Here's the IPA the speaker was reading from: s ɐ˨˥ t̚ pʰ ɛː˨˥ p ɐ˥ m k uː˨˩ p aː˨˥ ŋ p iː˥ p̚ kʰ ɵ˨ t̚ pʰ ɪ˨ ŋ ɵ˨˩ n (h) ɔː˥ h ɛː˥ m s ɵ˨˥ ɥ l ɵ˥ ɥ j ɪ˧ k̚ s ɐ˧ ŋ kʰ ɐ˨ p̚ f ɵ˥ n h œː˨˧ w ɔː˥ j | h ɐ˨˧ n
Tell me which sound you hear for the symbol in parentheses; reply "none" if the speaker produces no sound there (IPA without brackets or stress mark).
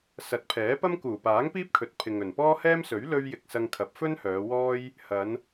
p